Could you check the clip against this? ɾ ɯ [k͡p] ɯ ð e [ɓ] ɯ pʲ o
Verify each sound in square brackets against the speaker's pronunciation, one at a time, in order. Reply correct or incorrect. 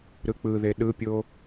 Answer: correct, incorrect

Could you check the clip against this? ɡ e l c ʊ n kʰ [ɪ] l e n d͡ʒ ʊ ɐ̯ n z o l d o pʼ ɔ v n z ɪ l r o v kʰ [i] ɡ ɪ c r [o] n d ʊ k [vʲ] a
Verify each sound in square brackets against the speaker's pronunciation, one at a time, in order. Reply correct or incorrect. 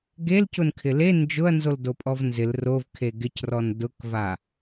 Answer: correct, incorrect, incorrect, incorrect

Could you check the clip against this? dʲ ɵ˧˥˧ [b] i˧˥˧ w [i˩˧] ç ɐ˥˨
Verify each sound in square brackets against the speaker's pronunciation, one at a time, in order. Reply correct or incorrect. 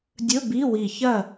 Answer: correct, incorrect

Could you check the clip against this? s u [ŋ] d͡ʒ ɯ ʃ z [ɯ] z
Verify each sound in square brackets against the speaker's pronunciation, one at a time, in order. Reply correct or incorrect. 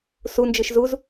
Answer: incorrect, incorrect

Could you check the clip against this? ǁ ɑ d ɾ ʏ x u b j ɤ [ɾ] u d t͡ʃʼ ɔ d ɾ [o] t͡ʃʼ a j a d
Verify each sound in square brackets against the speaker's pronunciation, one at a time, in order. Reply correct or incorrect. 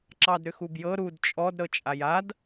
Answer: correct, incorrect

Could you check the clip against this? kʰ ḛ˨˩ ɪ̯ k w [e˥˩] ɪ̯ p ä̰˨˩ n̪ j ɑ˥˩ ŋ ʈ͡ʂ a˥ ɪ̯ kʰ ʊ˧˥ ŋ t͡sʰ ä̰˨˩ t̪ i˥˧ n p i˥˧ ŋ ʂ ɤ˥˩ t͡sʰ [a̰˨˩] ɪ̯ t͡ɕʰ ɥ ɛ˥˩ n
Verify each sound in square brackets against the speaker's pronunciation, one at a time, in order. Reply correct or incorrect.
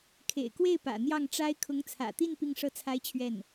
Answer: correct, incorrect

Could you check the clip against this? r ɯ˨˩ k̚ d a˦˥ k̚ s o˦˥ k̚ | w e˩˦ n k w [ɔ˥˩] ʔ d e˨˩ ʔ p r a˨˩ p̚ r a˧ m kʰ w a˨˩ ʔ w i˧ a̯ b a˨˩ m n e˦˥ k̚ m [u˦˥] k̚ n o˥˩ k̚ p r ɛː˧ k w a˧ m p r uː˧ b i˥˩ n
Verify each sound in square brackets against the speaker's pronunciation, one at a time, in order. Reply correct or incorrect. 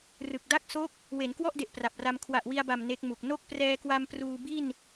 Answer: correct, incorrect

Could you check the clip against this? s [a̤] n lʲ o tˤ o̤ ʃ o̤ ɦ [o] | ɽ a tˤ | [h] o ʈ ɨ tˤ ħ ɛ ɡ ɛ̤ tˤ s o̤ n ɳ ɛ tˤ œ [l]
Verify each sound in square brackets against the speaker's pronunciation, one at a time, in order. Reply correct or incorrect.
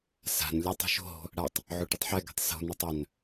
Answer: correct, incorrect, incorrect, incorrect

